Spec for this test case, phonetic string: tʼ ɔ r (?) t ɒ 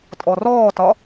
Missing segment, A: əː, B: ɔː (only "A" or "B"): B